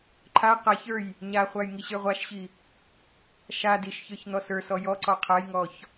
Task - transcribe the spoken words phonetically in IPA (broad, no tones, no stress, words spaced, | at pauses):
ǃʰa qaçə˞j | ɲaχʷaj ŋiɕə˞ʁʷaʃɕi | ʃa diʃçə˞ç n̪ɔsə˞sɔ jɔ ǀɔqʰajŋɔç